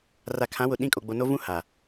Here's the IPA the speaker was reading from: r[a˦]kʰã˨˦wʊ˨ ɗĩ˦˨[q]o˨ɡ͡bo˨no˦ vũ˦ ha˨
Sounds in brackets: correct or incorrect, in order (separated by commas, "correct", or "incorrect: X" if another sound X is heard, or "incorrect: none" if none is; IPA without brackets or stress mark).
incorrect: a˨, incorrect: kʼ